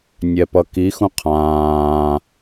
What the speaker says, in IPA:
nʲ ɛ p ʌ k i x ũ qʰ ãː

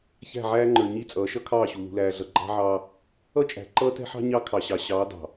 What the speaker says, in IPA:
ç æ̤˦˨ ʕ æː˦ ŋ͡ǃ ə˞˨ ɲ i˦ t͡sʼ ʌː˨˦ ʃ ʌ˦ kʰ ɑː˦˨ ɕ u˨ l ṳ˨ l æː˨ ɮ ʌ˨ ɡ͡ǃ ɑ̤˦ ʕ ɑː˦ | ʌ˦ t͡ʃʼ æ̤˨ ǃ ʌː˦ t ɛ̤˦ ħ ɑ̤˦ ɲ ɑ˦ kʰ ɑ˨ ɕ ɑ˨ ɕ ɑː˨˦ d ɑ̤˨

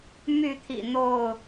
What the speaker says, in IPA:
m y˥˨ t̪ʰ ḭ˨˩ n̪ o˥˨ ʊ̯

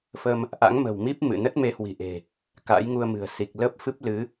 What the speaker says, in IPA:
f ə˧ m | ʔ a̰˧˥ ŋ m ə̤˨˩ w m i˦˥ p̚ m ɨ̰˧˨ n ə˦˥ t̚ m e˨˦ h w i̤˨˩ ʔ e̤˨˩ | k a̰˧˥ j ŋ u˧ ə̯ m ɨ̤˨˩ ə̯ s i˨˩ k̚ l əː˦˥ p̚ f ɨ˦˥ p̚ l ɨ˨˦

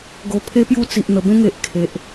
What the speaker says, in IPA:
ɡ o˨˩ pʰ e˦ p j u˦ t͡s i˨ ʔ n̪ ə˨˩ b ẽ˦ ŋ e˨ ʔ kʰ e˨ ʔ

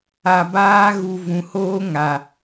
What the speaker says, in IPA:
a˨ b aː˧ ɣ u˨ v ũ˨ h oː˦ ŋ a˨

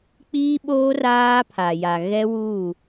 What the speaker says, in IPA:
k͡p iː˦ ɓ oː˦ r aː˦ pʰ a˨ j a˨ ɣ ɛ˦ w u˦˨

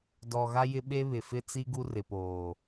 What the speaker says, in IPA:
d ɔ˨ ɣ a˦ j ɪ˦ ɓ e˦ β ɪ˨ f ɪ˦ t͡s i˦ ɡ u˦ r ɪ˨ p oː˨

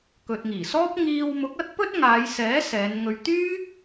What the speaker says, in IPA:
k ɵ˨ t̚ ŋ iː˨˩ s ɔː˥ p̚ ŋ iː˧ w m ʊ˨˥ k̚ ɐ˥ t̚ p ɵ˥ t̚ ŋ aː˨˧ j s ɛː˨˥ s ɛː˨˧ n ŋ ɵ˧ ɥ t̪ yː˥

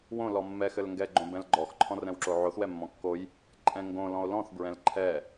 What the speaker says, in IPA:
w õ l ɔ mː ɛ x ɘ l ŋ ɡ ɛ ɡ͡ǃ õ b ɛ̃ l ɡ͡ǃ ɔ x ǃʰ ɔ̃ r ɛ̃ w ǁ o ʕ o θ w ɛ mː ɔ̃ kː o j | ǃʼ ɛ̃ ŋ ɡ õ l ɔ̃ o̯ l ɔ̃ θ b ɹ ɛ̃ l ǃʰ ɛ

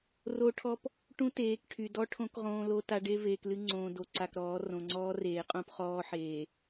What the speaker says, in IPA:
r o˦ ʈʰ ɔ˦ p | ʈ ũ˦ t eː˨˦ k ʈʰ y˨ d ɔ˦ ʈʰ õ˦ k ʁ õː˦ l o˦ t a˦ ɖ e˦ v eː˨ k l ɨ˦ ŋ͡ǀ õː˨ d o˨ ǀ a˨ k ɾ ɔː˨˦ r õ˨ ŋ͡ǀ ɔː˦ r eː˨ qʼ õ˦ p χ ɔː˦ ħ eː˨

